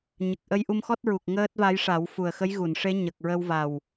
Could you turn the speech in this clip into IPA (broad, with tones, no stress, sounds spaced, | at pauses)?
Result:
ɲ ə˨˩ k̚ ʔ ə˧ j ʔ u˧ m x ɔ˦˥ t̚ ɹ u˨˩ k̚ ŋ əː˦˥ t̚ v a˧˥ j ʂ a˨˩˦ w f u˨˩ ə̯ x ə˧˥ j ɣ u˨˩˨ n ʂ e˧˥ ɲ ə˨˩ k̚ ɹ ə˧ w v a˨˩ w